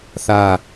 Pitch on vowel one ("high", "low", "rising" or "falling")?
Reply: falling